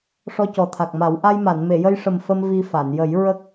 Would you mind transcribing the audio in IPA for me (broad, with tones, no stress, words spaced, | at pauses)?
ʂɔ˧cɔ˨˩t̪ʰa˨˩k̚ma˨˩˦w ʔa˧jma˨˩˨n me˨˩˨jə˧jʂə˨˩m fə˧m vi˧fa˨˩˨n jə˨˩˦j ɹə˦˥k̚